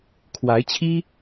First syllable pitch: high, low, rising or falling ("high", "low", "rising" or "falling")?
rising